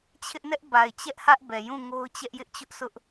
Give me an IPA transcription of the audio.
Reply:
t͡ɕʰ ɪ˦ ʔ n ɛ˦ ʔ b a˨ ɪ̯ t͡ɕ ɛ˦ ʔ h ä˦ ʔ b ɛ˨ j ũ˦˨ ŋ o˦ ʊ̯ t͡ɕ ɛ˦ ʔ j ɪ˦ ʔ t͡ɕ ʊ˦ ʔ s ʊ˦ ʔ

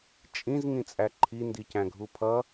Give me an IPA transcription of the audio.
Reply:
t͡ʃʼ ĩ z ŋ ĩ t͡sʼ æ ǃʰ i n d i c æ̃ ɡʱ u pʰ ʌ

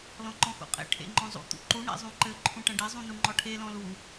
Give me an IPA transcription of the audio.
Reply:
l ɔ̃ ǃ ɔ̃ x ṵ qʼ ḛ ʈʰ ḛ ŋ͡ǃ ɔ̃ zˤ ṵ t̪ ṵ ǃ u ɳ ḛ zˤ ũ ǃ ɘ ǃʰ ũ ʈ ɐ̃ ɖ e zˤ ũ n u ŋ͡ǃ ɔ ʈʰ e l ɔ̃ l u

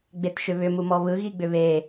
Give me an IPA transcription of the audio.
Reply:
ɡ͡b e t ʃ ʏ β ʏ m u m ɔ β ɯ ɣ i ɡ͡b ʏ β e

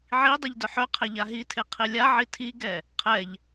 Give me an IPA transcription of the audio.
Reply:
ʕ i dˤ i ʎ d œ ħ œ qʰ ɛ ʎ a ɦ i tʰ e qʰ i lʲ a ʕ i tʰ i ɡ ɛ | qʰ ɛ ʎ

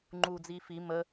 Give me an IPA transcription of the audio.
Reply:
ŋ͡ǃ uː d͡z iː f i m ə

